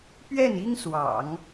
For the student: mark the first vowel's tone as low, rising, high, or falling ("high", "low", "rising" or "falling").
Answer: falling